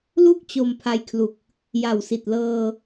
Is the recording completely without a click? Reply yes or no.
yes